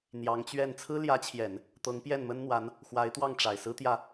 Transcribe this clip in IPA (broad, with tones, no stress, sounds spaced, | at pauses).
n̪ j ɑ˧˥ ŋ t͡ɕ ɥ ɛ˥˩ n t͡sʰ ɹ̩˥ l j ä˧˥ t͡ɕʰ j ɛ˨˩˦ n | t̪ ɤ˧˥ ŋ p j ɛ˥˩ n m ə˥ n n̪ w a˧˥ n | x w a˧˥ ɪ̯ t̪ w ɑ˥˩ ŋ ʈ͡ʂ a˨˩ ɪ̯ s ɹ̩˥ t̪ j ä˥˩